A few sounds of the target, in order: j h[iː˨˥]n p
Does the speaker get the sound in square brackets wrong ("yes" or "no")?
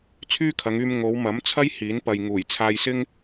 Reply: no